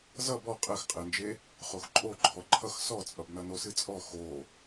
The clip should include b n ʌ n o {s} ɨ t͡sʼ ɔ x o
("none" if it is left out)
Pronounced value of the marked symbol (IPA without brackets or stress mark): s